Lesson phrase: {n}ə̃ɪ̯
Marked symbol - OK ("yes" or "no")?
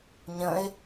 no